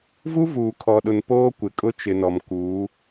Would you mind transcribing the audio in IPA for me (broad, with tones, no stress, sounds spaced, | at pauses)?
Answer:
v u˦ v uː˨ kʰ ɔ˨ ɗ ʊ˨ n p oː˦ kʷ ɪ˨ kʼ ʊ˦ t͡ʃ ɪ˨ n ɔ˨ m k uː˨˦